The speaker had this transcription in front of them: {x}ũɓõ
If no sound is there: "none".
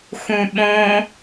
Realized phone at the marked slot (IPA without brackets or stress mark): x